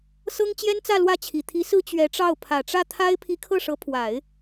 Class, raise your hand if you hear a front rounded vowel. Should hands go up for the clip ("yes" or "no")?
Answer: no